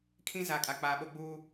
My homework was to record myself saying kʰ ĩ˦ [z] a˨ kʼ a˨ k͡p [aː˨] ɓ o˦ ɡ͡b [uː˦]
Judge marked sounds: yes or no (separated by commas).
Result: yes, yes, yes